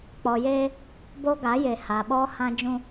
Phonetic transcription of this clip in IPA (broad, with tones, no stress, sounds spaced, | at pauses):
k͡p ɔ˨ j eː˦ | b o˦ ɡ a˨˦ j e˨ h a˨ ɓ ɔ˦ h ã˦ d͡ʒ ũ˦